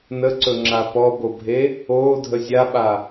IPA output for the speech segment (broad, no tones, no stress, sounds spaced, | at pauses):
n ə ǀ ɵ ŋ͡ǁ a p ɔ b o bʱ e | oː dʱ ə zʲ a ɓ a